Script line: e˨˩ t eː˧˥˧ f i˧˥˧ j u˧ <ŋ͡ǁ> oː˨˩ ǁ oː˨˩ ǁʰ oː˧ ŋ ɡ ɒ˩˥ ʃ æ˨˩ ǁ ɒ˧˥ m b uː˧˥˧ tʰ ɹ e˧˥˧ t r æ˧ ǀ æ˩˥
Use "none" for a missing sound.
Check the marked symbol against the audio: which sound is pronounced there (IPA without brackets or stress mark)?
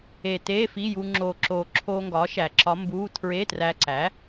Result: ŋ͡ǁ